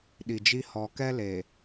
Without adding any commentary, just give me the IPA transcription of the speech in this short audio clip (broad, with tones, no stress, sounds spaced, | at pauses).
ɗ i˨ d͡ʒ i˦ h ɔ˨ k ɛ˦ l e˨